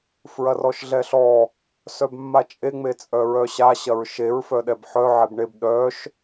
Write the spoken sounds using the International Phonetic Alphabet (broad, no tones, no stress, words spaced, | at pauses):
fɹɐrɔʃɮɛɬɔ | sœbmːat͡ʃʼe ŋ͡met͡sʼœɹœɕa ɕɐɹʃeɹ fœɗɛbħœ ʕebɳeb ɗœʃ